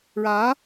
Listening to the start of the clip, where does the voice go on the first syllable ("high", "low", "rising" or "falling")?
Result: rising